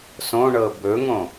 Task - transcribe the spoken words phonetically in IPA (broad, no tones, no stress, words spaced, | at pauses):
sõɳɤ bɵŋõ